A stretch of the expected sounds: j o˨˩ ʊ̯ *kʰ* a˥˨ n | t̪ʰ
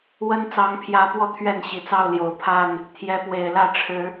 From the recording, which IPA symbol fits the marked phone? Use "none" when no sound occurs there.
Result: pʰ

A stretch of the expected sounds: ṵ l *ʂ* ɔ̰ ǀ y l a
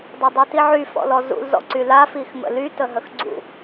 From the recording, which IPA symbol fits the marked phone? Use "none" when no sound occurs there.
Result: z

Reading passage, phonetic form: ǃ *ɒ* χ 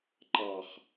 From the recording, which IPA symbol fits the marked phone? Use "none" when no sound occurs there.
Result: ɑ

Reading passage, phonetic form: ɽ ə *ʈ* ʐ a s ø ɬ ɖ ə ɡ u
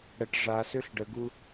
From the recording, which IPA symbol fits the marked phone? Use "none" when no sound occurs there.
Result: ʈ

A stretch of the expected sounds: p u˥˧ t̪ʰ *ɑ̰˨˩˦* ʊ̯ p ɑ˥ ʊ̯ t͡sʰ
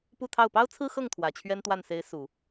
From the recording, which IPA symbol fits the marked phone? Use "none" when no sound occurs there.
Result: ɑ˥˩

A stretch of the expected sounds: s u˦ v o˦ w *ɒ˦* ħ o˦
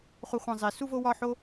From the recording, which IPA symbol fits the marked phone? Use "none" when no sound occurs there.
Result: ɒ˦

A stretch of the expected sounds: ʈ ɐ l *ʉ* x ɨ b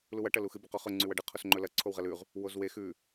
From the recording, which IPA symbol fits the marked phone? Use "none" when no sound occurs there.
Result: u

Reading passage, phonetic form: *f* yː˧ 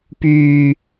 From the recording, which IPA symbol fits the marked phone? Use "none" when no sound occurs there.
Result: p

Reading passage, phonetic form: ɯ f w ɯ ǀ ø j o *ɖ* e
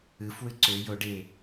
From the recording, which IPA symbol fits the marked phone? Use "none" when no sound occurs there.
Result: ɖ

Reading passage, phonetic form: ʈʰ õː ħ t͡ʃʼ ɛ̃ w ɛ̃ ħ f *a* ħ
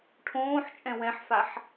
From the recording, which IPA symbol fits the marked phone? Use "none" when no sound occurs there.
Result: a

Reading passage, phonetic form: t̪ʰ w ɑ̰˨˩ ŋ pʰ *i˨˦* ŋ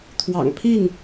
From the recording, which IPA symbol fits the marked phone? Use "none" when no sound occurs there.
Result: i˥˨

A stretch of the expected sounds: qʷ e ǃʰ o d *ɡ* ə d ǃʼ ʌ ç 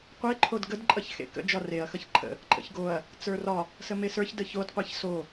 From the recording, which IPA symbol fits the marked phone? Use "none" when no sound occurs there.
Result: ɡ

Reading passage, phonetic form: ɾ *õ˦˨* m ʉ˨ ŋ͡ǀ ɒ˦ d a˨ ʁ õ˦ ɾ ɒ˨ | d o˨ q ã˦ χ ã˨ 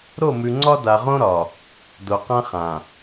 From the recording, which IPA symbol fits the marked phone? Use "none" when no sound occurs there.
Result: o˦˨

